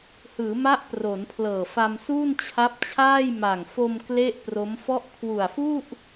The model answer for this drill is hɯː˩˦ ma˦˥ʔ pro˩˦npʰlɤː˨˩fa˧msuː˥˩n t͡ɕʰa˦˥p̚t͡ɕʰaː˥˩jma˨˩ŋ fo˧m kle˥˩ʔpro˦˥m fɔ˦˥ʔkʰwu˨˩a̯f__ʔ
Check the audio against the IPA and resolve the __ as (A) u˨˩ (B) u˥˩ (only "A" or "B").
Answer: B